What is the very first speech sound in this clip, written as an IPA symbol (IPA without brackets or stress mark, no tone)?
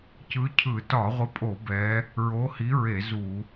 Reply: c